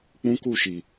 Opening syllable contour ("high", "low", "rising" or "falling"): high